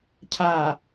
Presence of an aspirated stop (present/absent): present